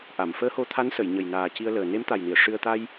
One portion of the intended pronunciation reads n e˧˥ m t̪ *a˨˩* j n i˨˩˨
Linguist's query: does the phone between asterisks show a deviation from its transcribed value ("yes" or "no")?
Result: no